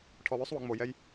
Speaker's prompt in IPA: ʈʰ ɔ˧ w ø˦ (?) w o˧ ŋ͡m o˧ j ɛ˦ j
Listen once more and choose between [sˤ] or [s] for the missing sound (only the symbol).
sˤ